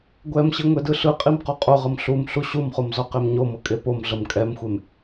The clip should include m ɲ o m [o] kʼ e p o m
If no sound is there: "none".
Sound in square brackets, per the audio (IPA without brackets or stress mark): ɤ